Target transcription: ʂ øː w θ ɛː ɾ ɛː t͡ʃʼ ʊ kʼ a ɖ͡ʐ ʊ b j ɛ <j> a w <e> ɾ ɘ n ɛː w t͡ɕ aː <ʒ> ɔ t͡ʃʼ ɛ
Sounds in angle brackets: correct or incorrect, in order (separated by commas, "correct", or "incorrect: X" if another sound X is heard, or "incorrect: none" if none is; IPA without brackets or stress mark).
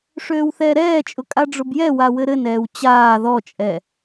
incorrect: w, incorrect: ɘ, incorrect: ð